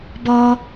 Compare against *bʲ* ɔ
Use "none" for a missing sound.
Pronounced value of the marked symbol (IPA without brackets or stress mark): b